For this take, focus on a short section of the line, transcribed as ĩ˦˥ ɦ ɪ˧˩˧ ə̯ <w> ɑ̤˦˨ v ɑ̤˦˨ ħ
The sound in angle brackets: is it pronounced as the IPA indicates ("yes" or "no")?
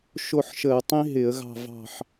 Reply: no